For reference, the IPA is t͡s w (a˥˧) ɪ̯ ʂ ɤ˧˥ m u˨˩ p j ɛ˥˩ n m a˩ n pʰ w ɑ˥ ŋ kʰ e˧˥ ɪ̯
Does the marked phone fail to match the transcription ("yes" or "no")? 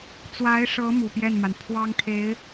yes